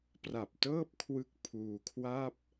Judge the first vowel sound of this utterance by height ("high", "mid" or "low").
low